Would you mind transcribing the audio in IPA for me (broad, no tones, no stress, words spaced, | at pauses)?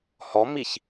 hɔmiç